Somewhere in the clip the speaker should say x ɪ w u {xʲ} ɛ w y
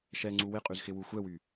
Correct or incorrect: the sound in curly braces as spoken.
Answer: incorrect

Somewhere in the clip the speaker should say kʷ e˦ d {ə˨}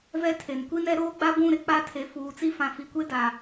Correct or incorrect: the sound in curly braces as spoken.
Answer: incorrect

